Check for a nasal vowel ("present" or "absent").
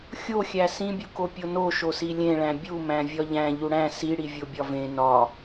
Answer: present